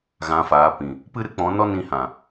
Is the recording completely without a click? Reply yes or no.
yes